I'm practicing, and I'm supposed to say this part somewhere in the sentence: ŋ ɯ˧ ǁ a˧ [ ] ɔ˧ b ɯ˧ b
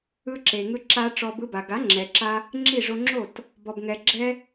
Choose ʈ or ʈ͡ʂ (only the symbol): ʈ͡ʂ